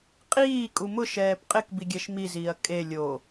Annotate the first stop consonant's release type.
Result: ejective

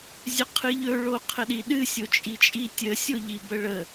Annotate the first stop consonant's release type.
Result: aspirated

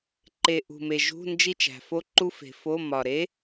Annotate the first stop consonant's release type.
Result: click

